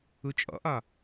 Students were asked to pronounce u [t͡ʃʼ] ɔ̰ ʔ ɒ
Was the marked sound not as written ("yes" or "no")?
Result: no